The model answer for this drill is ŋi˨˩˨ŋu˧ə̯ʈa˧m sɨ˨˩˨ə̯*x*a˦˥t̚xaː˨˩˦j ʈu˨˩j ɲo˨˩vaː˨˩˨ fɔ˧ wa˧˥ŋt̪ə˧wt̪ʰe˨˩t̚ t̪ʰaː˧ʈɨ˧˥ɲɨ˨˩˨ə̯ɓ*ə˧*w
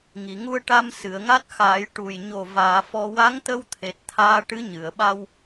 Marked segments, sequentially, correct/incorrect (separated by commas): incorrect, incorrect